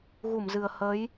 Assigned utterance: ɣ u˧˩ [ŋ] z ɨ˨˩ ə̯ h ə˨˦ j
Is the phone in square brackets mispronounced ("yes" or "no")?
yes